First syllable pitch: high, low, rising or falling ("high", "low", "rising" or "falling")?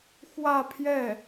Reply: falling